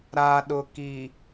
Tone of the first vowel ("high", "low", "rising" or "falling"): low